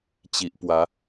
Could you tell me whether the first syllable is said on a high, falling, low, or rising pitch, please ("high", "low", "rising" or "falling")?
low